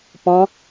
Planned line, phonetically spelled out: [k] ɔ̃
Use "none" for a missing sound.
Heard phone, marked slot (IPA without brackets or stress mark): p